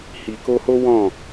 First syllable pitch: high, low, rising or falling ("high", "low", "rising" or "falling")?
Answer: low